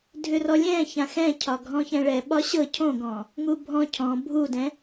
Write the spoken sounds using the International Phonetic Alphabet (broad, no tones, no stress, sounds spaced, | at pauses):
dʱ ʏ r ɔ lʲ ɛ̃ ç ã x ɛ̃ cʰ ɒ ɡʱ ɔ̃ ç ɛ̃ ɭ ɛ ɓ ɒ ɕ ɤ cʰ õ ɡ ɔ̃ | ŋ u bʱ ɔ̃ cʰ ɔ̃ bʱ u d ɛ̃